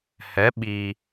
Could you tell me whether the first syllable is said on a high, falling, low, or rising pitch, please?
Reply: rising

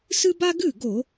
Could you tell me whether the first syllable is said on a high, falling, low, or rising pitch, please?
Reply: high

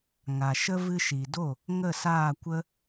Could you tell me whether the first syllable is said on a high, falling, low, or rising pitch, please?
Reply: low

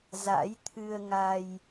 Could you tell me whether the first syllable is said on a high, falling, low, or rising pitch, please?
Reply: rising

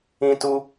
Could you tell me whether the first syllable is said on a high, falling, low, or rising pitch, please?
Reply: high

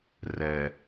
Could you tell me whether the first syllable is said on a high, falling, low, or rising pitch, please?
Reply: low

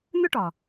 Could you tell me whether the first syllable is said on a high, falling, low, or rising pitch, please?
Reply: high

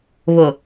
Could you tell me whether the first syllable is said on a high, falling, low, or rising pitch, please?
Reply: low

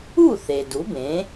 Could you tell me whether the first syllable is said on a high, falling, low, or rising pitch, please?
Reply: falling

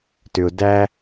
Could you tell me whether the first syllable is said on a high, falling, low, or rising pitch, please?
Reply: low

